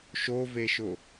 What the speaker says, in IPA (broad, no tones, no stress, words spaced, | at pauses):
ʃoveʃʊ